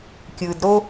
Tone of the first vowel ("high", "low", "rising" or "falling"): low